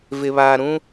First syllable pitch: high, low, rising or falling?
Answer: low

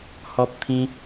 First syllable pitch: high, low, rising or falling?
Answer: high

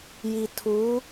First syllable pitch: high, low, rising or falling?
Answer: low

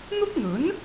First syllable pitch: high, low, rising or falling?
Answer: high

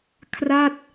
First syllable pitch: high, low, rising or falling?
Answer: falling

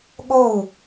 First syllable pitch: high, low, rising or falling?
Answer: falling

